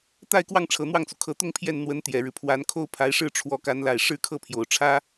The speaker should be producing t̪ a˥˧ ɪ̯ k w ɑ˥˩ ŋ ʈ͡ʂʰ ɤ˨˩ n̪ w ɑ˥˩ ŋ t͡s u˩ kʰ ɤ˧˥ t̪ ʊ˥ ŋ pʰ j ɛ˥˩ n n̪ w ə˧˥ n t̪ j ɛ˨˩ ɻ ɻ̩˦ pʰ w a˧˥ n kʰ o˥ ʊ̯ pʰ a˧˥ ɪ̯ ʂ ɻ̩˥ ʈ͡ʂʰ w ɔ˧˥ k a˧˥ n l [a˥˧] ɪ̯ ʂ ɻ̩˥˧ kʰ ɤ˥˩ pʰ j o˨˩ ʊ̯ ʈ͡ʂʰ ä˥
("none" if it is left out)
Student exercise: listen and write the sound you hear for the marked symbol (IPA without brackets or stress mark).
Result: a˨˩